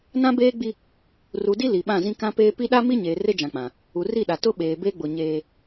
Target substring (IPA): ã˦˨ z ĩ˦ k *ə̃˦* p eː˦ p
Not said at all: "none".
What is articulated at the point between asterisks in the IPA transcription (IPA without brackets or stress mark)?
ã˦